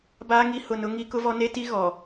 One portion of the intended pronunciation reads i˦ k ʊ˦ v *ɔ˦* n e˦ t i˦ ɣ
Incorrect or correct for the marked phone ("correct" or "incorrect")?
correct